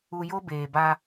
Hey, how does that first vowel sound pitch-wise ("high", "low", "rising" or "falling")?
low